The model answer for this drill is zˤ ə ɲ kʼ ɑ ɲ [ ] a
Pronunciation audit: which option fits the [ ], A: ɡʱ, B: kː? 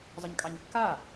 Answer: B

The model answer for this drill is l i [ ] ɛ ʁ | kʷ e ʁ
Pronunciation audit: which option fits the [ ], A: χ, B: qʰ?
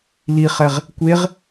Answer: A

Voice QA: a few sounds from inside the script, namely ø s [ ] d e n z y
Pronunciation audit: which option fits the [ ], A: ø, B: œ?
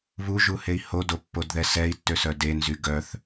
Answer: B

